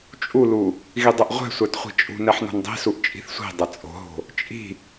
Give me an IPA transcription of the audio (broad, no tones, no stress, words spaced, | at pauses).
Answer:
t͡ʃʼulu | ɣidˤɐʔʁʷɛ̤ sʷætχʷi̤t͡ʃʼṳ nɛħno̤ndˤi̤suʔ t͡ʃʼi̤θsʷi̤ dˤɐt͡sʼo̤ɦo̤ | t͡ʃʼi̤